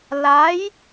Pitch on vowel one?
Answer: rising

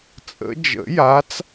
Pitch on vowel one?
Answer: rising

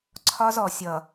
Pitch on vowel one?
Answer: high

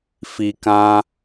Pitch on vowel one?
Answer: low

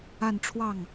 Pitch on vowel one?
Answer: falling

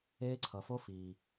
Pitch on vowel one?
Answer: high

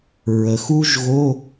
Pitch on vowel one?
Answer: low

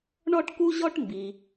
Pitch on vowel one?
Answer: high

